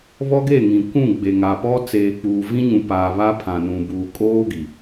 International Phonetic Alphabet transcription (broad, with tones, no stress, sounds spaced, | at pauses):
β ɔ˦ ɡ e˦˨ ŋ ĩ˨ kʷ ũ˦˨ ɡ͡b e˨ ŋ a˨ p ɔ˦ t͡s eː˨ k͡p uː˨ v ĩ˦ ɲ ũ˨ p aː˨ β a˦ pʰ ã˨ n ũ˨ b uː˨ kʼ oː˦ ɡ i˨